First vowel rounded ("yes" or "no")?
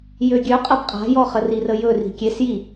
yes